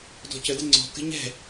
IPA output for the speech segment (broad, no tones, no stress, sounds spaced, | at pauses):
d ɔ̤ c ə d ɪ ŋ͡ǀ ɔ̤ k ə̤ ɲ ɛ̤